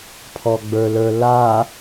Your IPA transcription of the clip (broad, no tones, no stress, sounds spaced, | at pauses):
pʰ ɔ ɡ͡b ə˞ l ə˞ l a